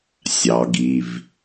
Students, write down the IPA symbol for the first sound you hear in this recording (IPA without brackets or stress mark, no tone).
sʲ